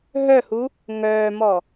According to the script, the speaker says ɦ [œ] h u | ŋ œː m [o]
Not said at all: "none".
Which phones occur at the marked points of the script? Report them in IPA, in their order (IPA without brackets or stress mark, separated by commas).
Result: œ, ɔ